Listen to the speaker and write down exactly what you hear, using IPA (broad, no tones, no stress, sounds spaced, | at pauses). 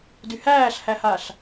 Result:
d y h æː ɬ h æ h a ɬ